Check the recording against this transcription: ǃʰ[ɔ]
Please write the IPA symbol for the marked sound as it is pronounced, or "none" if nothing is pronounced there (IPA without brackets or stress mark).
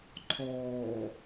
ɔː